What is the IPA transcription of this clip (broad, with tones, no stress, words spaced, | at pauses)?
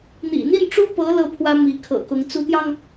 n̪ḭ˨˩n̪i˥˩nʈ͡ʂu˥pɤ˧˥ lɤ˥pʰwä˥ mi˧˥kʰɤ̰˨˩kʊ˧˥ŋ t͡su˧˥t̪jɑ˧ŋ